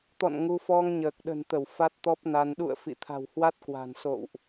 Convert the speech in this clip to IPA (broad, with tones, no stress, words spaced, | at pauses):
t̪ɔ̰˧˨n ŋu˧ fɔ˧ŋɲəː˨˩k̚ ɗə̤˨˩nt̪ə˧˩w fa˦˥t̚t̪ɔ˦˥p̚na˧n ɗṵ˧˨ə̯ fḭ˧˨t̪ʰa̤˨˩whwa˦˥t̚kwa̤˨˩n so̰˧˨wʔ